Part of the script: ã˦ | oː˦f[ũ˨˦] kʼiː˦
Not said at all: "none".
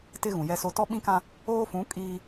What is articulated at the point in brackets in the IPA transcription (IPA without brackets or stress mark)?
ũ˨˦